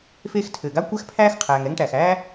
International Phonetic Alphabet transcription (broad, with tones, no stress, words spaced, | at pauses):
feː˦xtʰɘː˩ɡa˥ kʷæ˥xpʰæː˥x qʰæː˩ŋ ɛ˦ŋʈæ˩xæː˥